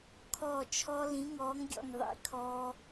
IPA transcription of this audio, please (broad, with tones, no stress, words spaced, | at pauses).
kʰɔː˥˩t͡ʃʰɔ˦˥ lĩ˨˥ŋɔː˨˥ŋɡʲɔ̰˥˩ŋ ðˤḭ˨˥ kʰɔː˦˥